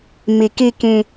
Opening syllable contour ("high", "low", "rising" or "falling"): low